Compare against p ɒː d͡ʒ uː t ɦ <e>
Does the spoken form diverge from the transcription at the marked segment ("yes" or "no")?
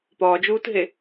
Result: no